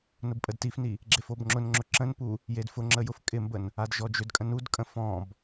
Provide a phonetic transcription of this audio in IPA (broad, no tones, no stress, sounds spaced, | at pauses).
n ʊ b pʼ ə d t i f n i | ɡ͡ǁ e f o b ŋ͡ǁ ʊ n ŋ͡ǁ ʊ ǁ ə̃ n p u | j e d f ʊ ŋ͡ǁ ə j ʊ f kʼ ɪ m b ə n | a d ʒ ɔ d͡ʒ ʏ d kʼ ə̃ n u d kʼ ə̃ f ɔ̃ b